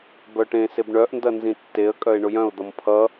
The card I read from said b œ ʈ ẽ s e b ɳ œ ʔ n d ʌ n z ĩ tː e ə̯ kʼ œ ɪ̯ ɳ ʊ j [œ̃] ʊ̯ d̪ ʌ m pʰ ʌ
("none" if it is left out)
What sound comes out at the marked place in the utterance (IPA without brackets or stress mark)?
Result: œ̃